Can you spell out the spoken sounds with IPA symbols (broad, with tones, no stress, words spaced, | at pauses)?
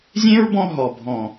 zʲẽ˦ɹbɔ̃˧ ɦɔ˨bʱɔ̃˨